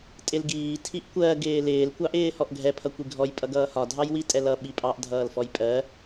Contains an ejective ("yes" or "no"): yes